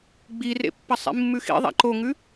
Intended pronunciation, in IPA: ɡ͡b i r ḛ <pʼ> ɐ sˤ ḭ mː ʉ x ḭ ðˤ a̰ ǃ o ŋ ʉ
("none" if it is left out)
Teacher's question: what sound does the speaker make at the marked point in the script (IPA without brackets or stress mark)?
pː